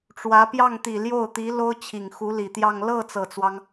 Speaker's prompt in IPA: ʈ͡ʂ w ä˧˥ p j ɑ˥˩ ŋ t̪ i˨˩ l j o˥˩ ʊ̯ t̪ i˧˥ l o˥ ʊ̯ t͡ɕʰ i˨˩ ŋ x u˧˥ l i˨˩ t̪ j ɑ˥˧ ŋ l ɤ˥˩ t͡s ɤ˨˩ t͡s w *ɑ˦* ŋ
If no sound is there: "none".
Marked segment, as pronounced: ɑ˦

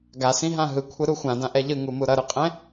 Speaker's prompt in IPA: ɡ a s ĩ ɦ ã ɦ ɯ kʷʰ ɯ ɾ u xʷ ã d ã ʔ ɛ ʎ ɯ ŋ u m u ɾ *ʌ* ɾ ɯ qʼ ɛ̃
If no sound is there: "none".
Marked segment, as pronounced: ʌ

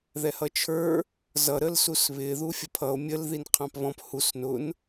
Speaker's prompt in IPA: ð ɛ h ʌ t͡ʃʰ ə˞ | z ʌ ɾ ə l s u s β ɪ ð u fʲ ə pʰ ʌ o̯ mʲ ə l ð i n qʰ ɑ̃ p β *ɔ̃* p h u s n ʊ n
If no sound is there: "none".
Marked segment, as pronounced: ɔ̃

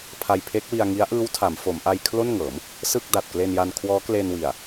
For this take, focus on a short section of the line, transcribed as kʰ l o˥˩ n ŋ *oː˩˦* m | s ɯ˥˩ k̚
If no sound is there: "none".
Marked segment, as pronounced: ɤː˩˦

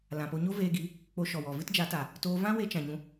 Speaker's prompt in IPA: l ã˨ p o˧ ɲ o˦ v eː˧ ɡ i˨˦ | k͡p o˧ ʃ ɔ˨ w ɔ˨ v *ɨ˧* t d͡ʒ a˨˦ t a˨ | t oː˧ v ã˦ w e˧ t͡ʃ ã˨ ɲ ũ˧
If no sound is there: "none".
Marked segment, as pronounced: ɨ˦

